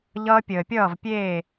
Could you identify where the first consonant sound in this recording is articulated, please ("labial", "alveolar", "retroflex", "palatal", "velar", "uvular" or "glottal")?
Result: palatal